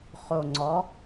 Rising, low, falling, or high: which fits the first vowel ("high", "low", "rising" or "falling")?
low